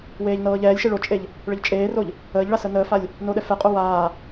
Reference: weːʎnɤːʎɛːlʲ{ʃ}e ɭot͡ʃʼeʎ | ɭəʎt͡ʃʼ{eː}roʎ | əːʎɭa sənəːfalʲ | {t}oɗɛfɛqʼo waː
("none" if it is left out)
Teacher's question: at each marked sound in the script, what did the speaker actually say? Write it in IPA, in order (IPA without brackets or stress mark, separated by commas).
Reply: ʃ, eː, n